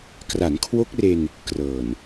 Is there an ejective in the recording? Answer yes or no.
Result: no